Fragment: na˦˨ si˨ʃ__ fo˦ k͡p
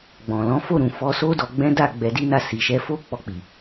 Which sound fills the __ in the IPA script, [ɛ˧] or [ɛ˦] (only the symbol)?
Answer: ɛ˧